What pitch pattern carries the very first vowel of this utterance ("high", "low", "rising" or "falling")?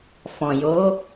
low